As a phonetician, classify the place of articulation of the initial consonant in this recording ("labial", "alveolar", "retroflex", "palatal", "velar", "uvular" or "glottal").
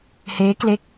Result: glottal